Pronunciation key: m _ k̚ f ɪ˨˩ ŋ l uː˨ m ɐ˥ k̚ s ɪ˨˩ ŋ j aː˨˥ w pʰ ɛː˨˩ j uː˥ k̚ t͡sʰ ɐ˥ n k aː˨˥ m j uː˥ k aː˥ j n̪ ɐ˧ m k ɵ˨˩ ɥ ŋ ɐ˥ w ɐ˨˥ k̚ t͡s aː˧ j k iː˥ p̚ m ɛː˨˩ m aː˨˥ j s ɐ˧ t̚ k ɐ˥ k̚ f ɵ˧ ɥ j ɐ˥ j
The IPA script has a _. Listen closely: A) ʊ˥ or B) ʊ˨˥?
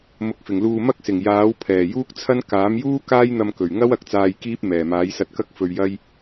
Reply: B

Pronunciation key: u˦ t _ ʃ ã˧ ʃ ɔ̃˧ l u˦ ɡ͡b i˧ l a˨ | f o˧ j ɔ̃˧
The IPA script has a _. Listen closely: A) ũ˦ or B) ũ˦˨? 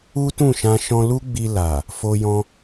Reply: B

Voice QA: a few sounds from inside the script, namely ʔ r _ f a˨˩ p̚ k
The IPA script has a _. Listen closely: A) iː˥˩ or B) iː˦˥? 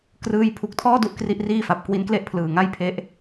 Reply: A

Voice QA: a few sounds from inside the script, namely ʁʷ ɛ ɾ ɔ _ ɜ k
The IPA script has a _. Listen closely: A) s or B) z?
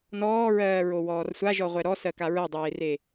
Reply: A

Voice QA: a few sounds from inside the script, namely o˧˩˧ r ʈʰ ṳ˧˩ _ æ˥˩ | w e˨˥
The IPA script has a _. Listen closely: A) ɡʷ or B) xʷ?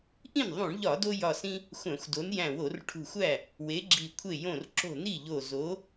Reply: B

